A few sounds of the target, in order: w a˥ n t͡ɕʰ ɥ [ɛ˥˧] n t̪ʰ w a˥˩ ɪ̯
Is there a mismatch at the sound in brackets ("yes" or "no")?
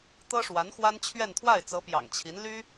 no